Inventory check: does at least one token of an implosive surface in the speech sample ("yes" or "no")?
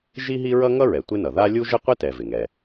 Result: no